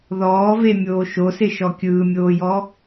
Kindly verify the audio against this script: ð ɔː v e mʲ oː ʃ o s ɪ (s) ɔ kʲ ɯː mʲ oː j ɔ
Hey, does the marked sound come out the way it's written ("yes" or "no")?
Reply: no